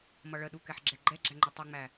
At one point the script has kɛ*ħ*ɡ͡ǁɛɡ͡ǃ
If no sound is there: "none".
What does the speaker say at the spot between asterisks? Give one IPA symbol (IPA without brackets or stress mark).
ħ